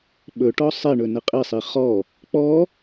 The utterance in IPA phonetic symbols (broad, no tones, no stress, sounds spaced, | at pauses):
ɓ ɵ ʈ ɔ sˤ e ɳ ɵ n ə qʼ i sˤ i χ ɔ | k͡p ɔ